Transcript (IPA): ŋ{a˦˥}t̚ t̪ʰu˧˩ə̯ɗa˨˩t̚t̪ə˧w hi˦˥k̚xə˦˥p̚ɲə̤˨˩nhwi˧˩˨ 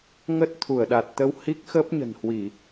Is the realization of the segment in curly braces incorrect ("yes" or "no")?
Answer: yes